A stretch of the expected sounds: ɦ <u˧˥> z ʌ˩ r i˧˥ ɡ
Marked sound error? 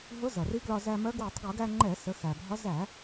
yes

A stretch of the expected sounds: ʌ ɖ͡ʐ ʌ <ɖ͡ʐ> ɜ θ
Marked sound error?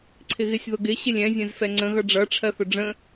yes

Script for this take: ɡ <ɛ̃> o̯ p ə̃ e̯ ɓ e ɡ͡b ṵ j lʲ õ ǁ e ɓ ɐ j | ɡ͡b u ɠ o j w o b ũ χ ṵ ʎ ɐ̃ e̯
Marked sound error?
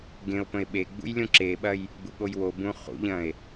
yes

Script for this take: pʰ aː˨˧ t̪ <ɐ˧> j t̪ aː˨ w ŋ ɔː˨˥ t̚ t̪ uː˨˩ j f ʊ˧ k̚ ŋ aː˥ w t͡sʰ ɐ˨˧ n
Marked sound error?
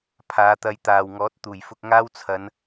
no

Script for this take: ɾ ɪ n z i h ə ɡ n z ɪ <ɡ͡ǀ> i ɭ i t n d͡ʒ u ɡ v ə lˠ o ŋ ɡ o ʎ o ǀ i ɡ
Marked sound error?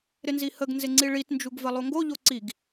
yes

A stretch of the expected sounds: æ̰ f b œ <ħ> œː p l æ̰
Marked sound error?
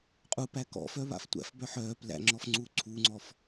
no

